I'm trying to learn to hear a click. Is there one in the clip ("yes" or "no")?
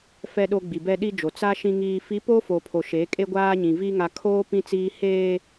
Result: no